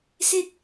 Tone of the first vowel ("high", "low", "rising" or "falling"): falling